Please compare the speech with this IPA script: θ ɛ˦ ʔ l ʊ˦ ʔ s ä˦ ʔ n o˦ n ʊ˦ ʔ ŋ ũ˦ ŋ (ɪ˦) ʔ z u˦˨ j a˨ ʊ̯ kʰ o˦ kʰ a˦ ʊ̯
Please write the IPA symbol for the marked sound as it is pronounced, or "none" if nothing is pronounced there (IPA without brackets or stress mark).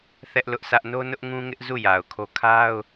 ɪ˦